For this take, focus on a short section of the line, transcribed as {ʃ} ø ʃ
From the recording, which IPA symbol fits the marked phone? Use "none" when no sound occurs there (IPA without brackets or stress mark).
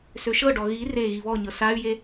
s